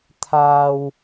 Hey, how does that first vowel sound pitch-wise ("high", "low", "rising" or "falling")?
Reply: high